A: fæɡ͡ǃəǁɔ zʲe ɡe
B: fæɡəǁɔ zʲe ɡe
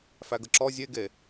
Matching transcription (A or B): B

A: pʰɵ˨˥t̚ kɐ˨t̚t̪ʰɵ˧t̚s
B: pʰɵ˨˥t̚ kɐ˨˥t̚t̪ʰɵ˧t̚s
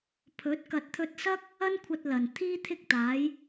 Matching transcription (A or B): A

